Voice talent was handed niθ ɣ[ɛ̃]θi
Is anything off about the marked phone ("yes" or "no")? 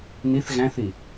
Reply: yes